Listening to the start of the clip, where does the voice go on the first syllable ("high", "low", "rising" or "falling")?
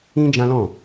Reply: high